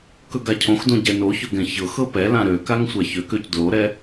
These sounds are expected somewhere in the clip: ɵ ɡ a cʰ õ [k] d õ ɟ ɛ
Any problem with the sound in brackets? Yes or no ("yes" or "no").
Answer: yes